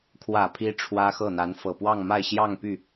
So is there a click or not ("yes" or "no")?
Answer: no